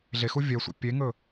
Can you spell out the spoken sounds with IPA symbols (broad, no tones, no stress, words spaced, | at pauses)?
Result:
ɮexu vʲɛsʷɛ̰ pʲeŋɵ